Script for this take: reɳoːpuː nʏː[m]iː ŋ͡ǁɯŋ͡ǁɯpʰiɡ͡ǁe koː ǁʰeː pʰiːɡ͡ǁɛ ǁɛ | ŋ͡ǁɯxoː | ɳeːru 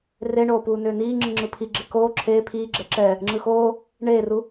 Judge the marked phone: incorrect: n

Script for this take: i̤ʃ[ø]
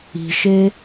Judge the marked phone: incorrect: e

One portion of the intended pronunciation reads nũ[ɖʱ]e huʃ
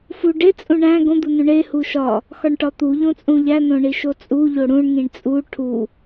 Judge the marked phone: incorrect: ɳ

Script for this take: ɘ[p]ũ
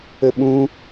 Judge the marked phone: incorrect: ɓ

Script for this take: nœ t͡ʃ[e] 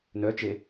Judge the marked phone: correct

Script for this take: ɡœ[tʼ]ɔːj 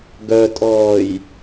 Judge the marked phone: correct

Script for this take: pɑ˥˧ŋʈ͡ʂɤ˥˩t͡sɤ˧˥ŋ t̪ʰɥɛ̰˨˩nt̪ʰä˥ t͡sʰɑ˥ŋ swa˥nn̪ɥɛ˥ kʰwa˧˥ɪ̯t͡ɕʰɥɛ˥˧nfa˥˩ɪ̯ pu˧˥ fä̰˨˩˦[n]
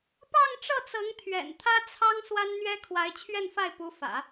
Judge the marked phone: incorrect: none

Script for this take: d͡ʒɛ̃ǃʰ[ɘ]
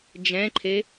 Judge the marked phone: incorrect: e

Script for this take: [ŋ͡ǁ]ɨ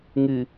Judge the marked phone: incorrect: ŋ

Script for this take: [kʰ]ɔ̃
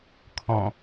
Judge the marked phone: correct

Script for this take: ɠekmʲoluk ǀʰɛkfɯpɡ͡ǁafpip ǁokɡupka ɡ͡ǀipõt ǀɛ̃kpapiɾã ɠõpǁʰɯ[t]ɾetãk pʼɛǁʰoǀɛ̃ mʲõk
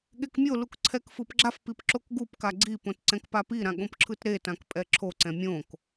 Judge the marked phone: correct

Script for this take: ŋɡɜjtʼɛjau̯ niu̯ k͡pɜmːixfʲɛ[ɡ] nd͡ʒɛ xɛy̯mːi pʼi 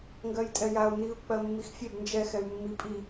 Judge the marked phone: incorrect: b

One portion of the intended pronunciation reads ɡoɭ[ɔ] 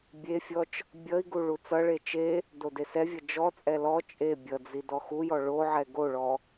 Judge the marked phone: correct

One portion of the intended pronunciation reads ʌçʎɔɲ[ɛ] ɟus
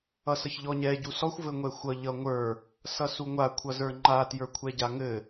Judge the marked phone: correct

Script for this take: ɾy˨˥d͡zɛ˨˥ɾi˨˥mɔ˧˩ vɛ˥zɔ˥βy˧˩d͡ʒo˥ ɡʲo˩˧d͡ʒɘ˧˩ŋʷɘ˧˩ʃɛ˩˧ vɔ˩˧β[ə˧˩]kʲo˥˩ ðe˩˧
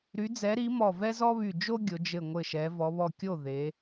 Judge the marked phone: incorrect: ɔ˧˩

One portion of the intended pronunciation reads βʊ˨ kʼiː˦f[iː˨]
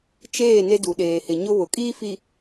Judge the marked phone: incorrect: i˨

